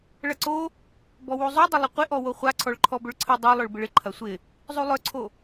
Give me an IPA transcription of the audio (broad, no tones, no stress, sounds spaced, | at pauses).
ɭ ɐ ǀ o | b ɔ w u zˤ u dˤ ə lˠ ɪ qʷ ɪ ʔ ɔ w o χʷ a ǀʰ ɔ ɭ ǃʰ ɔ b ʏ ɭ ǀʰ ə dˤ o lˠ œ ɭ b ɪ ɭ ɪ ǃʰ ɐ sʷ ɪ | zˤ u lˠ œ ǀʰ o